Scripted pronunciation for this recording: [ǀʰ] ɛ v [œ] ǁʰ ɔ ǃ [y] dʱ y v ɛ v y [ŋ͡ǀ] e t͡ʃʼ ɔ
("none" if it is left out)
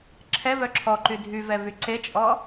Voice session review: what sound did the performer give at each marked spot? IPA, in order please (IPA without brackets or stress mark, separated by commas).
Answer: ǁʰ, œ, y, ǀ